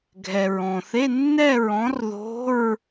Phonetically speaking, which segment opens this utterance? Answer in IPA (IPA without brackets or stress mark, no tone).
ɡʱ